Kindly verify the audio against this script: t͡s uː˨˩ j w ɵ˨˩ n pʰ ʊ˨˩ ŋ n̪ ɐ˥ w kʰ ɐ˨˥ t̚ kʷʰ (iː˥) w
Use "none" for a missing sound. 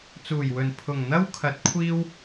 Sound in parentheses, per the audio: iː˥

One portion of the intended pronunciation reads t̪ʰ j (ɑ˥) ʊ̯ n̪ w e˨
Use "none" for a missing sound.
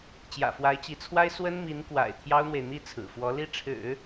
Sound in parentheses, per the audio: ɑ˥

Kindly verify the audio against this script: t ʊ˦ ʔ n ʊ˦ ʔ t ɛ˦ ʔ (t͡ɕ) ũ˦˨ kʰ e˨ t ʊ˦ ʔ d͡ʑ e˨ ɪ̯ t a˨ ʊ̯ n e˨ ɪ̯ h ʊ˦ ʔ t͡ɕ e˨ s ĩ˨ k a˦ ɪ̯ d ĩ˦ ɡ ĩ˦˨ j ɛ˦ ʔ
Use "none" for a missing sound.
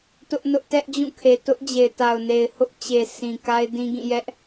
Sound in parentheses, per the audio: d͡ʑ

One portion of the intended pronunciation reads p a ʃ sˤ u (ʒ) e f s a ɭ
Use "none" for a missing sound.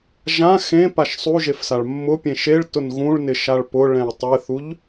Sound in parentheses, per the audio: ʒ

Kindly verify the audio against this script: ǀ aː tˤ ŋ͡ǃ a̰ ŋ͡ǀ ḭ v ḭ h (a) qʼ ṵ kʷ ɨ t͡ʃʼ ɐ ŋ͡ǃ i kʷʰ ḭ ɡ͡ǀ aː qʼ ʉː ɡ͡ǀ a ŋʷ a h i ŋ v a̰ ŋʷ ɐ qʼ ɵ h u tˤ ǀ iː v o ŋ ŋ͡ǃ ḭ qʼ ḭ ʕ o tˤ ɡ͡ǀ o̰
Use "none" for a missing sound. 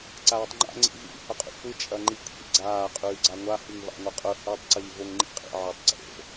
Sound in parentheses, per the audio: ɐ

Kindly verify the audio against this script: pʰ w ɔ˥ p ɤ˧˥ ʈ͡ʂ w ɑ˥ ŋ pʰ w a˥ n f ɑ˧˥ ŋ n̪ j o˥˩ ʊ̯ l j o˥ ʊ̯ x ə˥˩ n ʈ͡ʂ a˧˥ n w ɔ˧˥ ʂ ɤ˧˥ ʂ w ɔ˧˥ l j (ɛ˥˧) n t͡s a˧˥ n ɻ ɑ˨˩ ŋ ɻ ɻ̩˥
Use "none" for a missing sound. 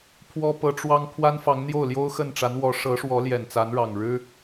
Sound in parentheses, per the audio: ɛ˨˩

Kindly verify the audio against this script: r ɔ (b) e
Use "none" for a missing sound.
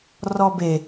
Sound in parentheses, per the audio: b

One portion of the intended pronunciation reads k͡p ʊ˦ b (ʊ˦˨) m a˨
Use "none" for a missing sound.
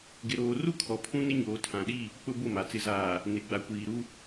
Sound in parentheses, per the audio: ʊ˦˨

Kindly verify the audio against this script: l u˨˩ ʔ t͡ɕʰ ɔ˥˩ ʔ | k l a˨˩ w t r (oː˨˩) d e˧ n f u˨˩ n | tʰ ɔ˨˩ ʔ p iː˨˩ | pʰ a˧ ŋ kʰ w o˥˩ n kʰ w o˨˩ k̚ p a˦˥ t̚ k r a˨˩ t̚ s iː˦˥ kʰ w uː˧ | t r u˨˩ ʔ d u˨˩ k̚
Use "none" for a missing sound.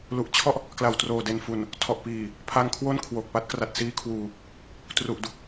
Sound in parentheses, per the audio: oː˨˩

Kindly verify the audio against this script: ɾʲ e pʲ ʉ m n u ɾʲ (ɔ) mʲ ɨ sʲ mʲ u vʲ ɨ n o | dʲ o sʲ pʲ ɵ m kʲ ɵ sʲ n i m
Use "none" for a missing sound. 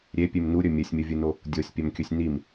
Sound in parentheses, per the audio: ɵ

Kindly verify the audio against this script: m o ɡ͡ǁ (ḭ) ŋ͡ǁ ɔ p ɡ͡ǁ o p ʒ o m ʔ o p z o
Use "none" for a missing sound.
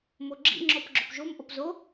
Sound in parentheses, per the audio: ḭ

